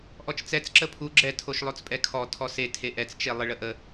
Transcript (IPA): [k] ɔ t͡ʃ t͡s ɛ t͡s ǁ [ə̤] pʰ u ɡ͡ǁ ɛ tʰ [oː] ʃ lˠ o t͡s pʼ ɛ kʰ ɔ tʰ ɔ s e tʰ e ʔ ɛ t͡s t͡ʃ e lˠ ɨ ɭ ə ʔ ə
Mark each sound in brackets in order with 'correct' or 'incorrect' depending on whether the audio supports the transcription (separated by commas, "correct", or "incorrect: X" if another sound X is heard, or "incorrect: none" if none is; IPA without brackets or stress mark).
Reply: incorrect: ʔ, incorrect: ə, incorrect: o